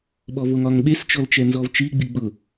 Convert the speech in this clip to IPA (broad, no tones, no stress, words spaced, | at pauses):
ɓɔvoŋɒŋɓes t͡ʃɔlt͡ʃɛnzɔvt͡ʃi ɡ͡biɡ͡bʊ